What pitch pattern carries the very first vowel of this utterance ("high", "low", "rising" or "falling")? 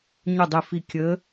falling